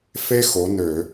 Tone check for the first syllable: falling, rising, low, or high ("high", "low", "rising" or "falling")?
high